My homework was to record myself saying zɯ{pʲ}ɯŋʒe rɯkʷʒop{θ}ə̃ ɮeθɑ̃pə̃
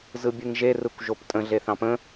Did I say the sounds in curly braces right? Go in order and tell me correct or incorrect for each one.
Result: incorrect: bʲ, incorrect: tʼ

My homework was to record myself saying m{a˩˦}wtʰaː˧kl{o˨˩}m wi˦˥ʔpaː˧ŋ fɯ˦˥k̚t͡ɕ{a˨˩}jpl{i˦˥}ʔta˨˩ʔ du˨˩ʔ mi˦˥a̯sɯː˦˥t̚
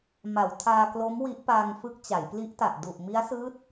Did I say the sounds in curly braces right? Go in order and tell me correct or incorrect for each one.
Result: correct, incorrect: o˦˥, incorrect: a˩˦, correct

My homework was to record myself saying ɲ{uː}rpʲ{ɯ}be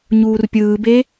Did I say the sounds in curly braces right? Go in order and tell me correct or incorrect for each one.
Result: correct, incorrect: ɯː

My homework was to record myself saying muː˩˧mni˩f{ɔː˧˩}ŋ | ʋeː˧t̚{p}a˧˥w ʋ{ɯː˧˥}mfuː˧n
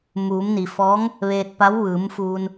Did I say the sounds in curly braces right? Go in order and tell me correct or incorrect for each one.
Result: incorrect: ɔː˧˥, correct, incorrect: ɯː˩˧

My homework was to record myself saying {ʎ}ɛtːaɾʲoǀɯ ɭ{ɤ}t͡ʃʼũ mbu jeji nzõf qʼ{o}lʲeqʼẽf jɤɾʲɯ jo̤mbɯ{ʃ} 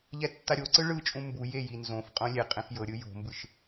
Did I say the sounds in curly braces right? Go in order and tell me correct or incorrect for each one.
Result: correct, incorrect: ɯ, incorrect: õ, correct

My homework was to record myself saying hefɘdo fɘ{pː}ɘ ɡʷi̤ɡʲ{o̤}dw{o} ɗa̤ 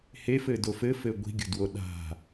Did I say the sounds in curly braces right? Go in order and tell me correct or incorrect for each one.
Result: incorrect: f, correct, correct

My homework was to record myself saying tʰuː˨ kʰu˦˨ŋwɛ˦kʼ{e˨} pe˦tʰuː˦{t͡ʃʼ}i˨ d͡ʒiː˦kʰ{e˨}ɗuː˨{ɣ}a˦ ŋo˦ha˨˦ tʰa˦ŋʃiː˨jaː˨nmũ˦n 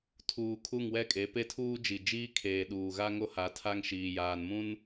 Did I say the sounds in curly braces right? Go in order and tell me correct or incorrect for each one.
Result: incorrect: e˨˦, incorrect: d͡ʒ, incorrect: eː˨, correct

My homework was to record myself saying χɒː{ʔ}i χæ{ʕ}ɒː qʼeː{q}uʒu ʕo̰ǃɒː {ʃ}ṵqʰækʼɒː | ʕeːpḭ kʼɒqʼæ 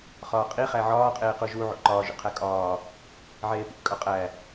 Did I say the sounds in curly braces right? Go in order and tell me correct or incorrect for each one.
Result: incorrect: qʼ, correct, correct, incorrect: ʒ

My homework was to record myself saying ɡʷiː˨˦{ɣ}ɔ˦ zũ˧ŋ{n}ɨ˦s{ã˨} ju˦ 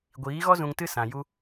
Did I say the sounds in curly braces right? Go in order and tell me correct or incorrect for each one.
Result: correct, incorrect: t, correct

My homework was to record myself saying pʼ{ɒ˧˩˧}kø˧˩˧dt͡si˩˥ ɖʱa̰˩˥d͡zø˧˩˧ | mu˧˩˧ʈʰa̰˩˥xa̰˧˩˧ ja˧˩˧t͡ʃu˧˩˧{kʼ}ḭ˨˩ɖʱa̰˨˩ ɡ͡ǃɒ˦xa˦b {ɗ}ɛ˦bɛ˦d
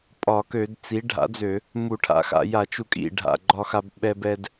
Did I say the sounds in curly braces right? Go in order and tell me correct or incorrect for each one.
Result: correct, correct, incorrect: ɓ

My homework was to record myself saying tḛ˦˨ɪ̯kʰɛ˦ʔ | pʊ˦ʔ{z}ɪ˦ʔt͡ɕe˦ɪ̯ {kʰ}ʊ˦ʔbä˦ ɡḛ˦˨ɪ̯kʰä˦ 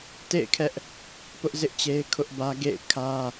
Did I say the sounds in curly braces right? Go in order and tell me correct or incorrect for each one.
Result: correct, correct

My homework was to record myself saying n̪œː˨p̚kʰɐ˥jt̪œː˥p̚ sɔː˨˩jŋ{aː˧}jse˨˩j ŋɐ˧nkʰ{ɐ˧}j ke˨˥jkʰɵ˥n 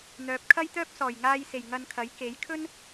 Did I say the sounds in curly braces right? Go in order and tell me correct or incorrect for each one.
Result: correct, incorrect: ɐ˨˥

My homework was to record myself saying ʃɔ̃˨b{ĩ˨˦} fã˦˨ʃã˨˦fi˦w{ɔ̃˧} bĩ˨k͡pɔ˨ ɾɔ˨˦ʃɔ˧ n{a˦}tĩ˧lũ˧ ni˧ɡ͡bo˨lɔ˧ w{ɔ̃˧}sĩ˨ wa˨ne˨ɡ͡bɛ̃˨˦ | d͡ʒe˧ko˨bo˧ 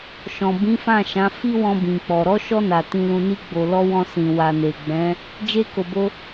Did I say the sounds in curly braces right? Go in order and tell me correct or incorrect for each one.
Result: correct, correct, incorrect: a˨, correct

